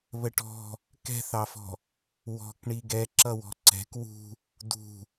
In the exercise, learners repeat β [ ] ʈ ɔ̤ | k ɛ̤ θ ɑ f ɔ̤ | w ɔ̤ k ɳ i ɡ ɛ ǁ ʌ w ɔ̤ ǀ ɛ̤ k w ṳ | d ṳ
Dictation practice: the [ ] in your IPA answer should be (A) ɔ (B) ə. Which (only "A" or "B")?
B